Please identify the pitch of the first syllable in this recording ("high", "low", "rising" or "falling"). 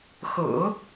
low